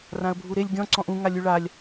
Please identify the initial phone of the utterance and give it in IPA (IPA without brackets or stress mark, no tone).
r